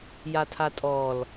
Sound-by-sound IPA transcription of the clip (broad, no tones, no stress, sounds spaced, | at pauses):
j a tʰ a tʼ ɔ l